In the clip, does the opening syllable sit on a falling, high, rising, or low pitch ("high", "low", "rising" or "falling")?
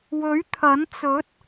rising